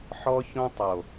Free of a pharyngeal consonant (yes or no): no